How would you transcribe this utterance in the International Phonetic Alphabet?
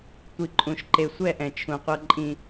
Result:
tʷ i˨ ǃʼ ũ˨ ʃ ǃ e˨ sʷ ɛ˦˨ ʔ ɛ̃˨ t͡ʃʰ ũ˨ qʷ ɤ˦ ǃʼ ĩ˦

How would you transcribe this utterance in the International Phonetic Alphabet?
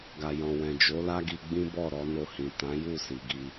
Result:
ɡ a˨ j ɔ̃˨ w ɛ̃˨ d͡ʒ o˨˦ l a˦ ɡ i˧ ɡ͡b ĩ˦ b ɔ˦˨ ɾ ɔ˧ n o˧ h ĩ˨ t ã˨˦ j u˦˨ s i˨ ɡ i˧

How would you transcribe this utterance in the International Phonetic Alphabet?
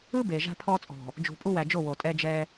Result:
ɯ˦ b e˨ ʒ a̤˦ pʰ ɔ˦ t͡sʼ ɔ̤˨ | d͡ʒ ṳ˨ pʼ u˦ w æ˨ d͡ʒ o˦˨ w o˨ tʼ ɛ˦ d͡ʒ ɛ˦

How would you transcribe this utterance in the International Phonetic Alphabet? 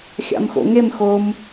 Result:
xʲ a̰ m x o̰ ŋ e m x o m

